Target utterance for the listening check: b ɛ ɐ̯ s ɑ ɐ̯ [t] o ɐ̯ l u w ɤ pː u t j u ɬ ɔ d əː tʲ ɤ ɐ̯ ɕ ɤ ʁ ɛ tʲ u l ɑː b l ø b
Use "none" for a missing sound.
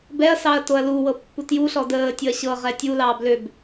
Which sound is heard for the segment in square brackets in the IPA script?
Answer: t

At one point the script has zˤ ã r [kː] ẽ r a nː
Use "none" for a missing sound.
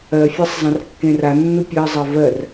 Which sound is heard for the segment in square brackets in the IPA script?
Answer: kː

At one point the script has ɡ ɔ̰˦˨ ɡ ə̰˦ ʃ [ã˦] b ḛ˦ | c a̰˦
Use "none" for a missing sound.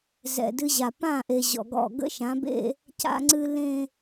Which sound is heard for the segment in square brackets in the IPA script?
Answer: ã˨˦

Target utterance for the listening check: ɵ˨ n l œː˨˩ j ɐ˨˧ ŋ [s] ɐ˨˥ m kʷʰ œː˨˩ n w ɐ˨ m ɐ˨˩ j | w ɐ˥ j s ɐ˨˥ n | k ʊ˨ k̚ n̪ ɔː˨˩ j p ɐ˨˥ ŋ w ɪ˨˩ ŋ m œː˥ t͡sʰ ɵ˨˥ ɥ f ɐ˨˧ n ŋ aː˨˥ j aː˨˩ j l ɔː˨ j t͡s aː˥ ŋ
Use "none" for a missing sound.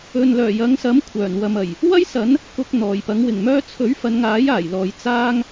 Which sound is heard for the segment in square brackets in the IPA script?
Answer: s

